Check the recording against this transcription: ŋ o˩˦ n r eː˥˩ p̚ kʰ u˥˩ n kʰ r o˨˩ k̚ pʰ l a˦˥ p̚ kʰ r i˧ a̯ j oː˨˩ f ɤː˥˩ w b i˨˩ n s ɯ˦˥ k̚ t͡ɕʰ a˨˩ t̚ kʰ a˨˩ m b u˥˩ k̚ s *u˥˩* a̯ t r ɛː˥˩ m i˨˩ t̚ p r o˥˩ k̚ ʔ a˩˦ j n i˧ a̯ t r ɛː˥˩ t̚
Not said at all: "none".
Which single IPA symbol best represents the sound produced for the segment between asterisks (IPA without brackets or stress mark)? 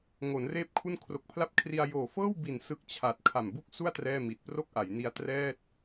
u˥˩